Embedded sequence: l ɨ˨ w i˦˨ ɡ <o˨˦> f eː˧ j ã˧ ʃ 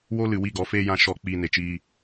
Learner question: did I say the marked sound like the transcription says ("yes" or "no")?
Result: no